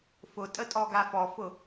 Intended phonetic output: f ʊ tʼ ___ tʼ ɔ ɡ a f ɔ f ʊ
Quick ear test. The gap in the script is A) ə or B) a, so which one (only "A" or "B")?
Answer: A